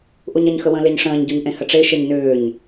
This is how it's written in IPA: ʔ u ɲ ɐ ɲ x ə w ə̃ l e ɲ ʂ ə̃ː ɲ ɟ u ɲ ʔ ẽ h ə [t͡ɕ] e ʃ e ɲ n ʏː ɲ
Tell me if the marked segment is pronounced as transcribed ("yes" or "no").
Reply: no